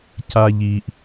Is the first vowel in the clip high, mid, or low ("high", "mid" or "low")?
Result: low